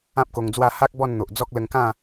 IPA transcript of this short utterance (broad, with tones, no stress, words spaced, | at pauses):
ã˦p̚ko˧ŋd͡zwa˥˧ ha˦k̚ bɔ˥˧nn̪o˨ʔd͡zɔ˦k̚ lə˧ŋkã˥˧